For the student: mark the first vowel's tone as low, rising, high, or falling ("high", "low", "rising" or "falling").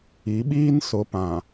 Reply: rising